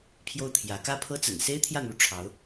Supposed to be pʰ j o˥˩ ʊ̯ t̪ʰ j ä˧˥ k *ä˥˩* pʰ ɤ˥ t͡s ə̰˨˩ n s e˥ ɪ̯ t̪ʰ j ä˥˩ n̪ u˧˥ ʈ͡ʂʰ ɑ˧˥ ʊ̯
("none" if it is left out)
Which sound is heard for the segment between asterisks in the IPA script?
ä˥˩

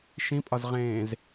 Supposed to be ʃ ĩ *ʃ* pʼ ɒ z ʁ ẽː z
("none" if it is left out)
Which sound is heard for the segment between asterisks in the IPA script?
none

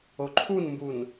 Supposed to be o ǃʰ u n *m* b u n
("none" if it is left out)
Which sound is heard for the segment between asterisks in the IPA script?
m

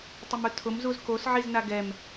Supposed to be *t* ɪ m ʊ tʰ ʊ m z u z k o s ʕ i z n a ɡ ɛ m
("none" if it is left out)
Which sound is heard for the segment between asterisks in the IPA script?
tˤ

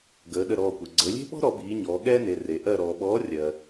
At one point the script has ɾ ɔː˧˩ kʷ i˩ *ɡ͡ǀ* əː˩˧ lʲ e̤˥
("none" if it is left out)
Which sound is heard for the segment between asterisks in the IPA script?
ɡ͡ǀ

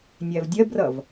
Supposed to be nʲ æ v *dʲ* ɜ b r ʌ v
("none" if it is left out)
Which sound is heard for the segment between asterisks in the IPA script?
dʲ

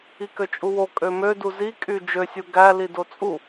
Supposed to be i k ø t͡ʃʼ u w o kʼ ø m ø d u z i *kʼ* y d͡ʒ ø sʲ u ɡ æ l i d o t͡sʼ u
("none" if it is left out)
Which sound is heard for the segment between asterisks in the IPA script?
kʼ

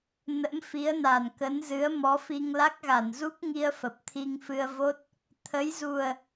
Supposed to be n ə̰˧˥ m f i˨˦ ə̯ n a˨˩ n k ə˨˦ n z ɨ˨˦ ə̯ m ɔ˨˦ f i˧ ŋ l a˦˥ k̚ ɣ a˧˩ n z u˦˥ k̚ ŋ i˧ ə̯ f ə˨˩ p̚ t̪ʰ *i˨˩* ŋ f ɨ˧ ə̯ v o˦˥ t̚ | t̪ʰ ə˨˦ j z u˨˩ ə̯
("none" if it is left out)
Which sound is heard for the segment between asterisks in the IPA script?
i˧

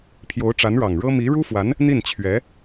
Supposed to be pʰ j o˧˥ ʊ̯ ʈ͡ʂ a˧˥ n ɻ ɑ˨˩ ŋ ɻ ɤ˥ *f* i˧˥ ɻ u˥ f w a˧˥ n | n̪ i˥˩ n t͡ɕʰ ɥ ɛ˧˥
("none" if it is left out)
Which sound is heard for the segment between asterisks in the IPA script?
m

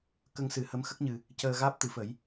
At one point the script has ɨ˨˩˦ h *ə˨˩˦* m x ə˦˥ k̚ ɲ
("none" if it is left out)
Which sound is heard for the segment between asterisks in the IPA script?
ə˧˥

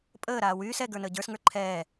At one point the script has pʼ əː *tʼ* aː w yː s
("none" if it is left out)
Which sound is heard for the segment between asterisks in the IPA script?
ɾ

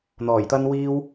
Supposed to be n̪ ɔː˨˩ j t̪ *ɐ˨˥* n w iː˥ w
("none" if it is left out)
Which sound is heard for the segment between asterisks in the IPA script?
ɐ˥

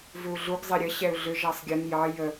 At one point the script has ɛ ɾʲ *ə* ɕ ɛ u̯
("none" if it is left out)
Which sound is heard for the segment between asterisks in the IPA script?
ə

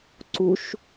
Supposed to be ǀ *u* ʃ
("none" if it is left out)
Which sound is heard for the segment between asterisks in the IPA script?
u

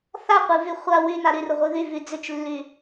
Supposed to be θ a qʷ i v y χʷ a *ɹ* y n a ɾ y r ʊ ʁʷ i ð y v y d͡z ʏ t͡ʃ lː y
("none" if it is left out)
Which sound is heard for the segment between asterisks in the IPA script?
w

